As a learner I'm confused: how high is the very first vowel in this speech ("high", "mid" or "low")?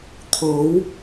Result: mid